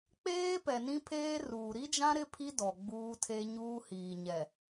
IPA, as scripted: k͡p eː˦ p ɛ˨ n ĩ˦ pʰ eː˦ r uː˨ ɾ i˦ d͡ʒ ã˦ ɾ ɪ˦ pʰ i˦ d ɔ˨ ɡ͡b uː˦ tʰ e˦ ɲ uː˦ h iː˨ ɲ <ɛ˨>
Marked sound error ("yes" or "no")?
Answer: no